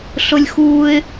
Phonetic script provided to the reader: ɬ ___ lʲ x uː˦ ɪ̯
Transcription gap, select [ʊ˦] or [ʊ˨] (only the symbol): ʊ˦